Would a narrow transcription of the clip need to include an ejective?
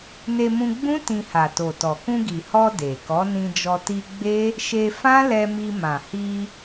no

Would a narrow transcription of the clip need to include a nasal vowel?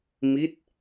no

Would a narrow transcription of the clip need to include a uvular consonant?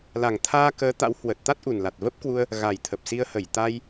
no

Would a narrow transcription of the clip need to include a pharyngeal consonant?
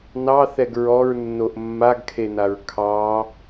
no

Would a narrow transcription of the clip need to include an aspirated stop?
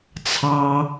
yes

